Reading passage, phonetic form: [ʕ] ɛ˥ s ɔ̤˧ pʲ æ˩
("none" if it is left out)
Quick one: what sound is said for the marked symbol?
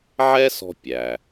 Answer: ʕ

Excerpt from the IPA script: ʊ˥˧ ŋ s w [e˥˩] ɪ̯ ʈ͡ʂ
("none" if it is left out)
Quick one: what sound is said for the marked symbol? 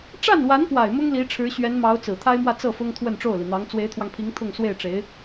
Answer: e˥˩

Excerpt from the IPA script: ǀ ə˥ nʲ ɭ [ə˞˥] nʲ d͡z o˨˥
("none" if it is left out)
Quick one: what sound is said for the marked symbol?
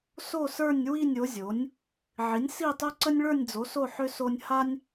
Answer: ə˞˥˧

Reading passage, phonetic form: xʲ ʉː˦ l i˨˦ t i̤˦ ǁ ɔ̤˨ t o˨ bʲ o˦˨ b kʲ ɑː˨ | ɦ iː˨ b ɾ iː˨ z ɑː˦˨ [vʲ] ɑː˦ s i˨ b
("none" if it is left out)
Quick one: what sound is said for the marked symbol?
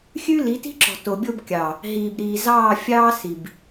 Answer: fʲ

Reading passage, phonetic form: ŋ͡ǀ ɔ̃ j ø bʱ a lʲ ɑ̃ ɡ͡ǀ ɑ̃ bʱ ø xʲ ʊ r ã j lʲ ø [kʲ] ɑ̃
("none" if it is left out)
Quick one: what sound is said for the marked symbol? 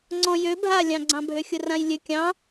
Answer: kʲ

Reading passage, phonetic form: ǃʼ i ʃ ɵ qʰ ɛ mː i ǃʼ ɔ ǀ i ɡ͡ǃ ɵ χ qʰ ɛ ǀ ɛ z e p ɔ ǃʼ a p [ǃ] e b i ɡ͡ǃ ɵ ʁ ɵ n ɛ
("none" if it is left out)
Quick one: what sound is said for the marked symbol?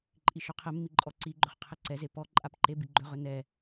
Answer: ǃ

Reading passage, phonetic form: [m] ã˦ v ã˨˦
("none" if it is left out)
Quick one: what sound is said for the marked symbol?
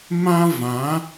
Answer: m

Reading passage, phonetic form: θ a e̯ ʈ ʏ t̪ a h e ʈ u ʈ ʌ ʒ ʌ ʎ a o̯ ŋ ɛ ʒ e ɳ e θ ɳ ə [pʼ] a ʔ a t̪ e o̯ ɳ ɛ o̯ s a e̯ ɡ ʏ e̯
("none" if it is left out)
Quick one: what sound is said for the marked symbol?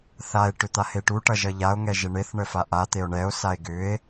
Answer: f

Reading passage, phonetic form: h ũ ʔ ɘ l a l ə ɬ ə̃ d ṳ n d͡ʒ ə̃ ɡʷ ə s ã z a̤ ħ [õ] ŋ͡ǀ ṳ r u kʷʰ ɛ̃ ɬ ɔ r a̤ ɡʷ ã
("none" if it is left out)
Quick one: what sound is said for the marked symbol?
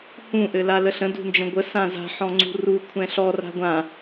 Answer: ɔ̃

